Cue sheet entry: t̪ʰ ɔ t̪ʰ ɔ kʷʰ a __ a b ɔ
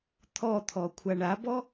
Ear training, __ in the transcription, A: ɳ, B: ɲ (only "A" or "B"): A